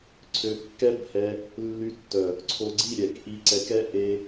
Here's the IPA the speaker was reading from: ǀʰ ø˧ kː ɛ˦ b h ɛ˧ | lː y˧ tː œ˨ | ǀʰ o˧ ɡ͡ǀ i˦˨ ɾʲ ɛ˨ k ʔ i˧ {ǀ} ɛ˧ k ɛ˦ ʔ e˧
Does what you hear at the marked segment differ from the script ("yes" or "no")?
no